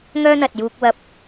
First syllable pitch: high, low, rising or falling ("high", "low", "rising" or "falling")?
high